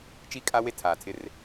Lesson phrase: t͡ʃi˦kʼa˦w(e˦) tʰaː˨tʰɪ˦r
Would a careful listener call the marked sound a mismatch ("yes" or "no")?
no